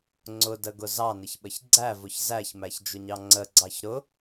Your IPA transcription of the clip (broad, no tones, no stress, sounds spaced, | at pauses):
ŋ͡ǀ ʊ d ə ɡ ʊ z ɑ n ɪ ç ɓ ə ç ɡ͡ǀ æ v ʊ ç z æ ç m æ ç d͡ʒ ʊ ɲ ɑ ŋ͡ǀ ə ɡ͡ǀ ɑ ç ɾ ʊ